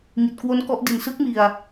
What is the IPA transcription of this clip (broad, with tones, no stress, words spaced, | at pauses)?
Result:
ŋi˨˩t̚kwo˦˥nkɔ˦˥ʔdi˨˩n sɯ˦˥k̚mi˨˩a̯